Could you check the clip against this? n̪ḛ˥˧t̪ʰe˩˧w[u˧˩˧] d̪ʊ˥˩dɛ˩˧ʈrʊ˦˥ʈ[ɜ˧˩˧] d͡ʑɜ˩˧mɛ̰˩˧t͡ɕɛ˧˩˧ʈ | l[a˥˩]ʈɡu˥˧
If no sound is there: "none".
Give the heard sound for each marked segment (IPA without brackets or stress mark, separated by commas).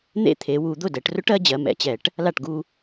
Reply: u˧˩˧, ɜ˩˧, a˥˩